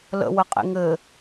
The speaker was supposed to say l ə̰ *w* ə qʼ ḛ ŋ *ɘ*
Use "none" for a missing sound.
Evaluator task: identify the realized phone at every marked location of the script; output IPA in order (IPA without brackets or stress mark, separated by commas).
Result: w, ɘ